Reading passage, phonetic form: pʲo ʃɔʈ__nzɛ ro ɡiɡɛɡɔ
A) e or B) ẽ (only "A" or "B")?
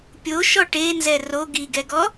A